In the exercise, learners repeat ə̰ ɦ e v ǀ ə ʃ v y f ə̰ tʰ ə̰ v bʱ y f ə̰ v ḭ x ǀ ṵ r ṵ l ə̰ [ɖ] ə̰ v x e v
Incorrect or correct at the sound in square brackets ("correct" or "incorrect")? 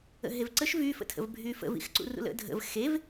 incorrect